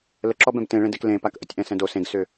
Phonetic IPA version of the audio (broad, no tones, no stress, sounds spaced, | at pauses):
l ə ǁ ɔ b ɛ̃ b t ẽ ɭ ẽ d e k l ẽ p a k ʔ ə tʲ ʔ ɛ̃ s ɛ̃ d o s ẽ ɡ s ʏ